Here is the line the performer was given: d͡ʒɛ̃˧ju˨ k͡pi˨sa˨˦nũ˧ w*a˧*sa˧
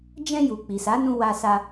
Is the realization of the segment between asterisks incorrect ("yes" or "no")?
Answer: no